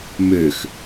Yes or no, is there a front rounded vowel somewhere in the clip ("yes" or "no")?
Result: yes